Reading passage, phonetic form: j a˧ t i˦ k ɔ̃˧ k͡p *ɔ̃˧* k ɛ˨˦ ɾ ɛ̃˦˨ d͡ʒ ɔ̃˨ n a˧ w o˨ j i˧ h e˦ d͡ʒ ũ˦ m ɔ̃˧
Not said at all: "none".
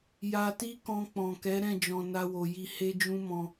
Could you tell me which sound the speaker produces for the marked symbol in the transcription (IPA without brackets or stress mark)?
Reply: ɔ̃˨